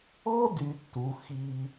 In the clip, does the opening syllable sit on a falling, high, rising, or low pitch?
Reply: high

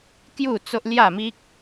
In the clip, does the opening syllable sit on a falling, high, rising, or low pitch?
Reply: falling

